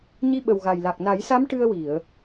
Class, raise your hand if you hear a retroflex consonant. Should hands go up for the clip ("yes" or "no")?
yes